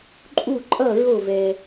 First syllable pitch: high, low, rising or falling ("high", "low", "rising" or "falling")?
falling